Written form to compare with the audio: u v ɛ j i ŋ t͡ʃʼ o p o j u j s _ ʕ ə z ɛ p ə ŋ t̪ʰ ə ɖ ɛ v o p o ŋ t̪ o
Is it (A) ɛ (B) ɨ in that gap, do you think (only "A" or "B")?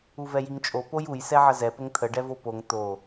A